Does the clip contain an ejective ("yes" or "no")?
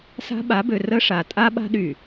yes